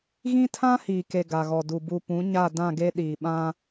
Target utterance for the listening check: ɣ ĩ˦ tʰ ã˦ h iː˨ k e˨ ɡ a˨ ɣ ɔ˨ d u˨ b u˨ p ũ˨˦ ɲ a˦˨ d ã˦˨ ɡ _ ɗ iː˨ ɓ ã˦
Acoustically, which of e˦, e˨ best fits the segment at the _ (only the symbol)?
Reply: e˦